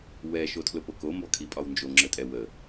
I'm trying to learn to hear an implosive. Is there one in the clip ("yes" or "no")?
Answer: no